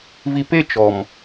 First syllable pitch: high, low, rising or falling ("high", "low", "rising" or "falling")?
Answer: low